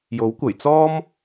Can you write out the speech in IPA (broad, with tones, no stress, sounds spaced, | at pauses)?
j o˨˥ w kʷ ɐ˨˩ j t͡s ɔː˥ m